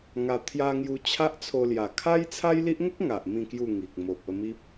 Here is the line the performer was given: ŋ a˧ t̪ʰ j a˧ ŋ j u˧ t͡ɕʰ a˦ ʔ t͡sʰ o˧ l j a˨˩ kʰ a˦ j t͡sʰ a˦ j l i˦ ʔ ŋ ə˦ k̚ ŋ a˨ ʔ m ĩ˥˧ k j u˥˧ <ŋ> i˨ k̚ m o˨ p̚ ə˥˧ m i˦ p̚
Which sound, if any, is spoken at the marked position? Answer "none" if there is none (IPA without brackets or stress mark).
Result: ŋ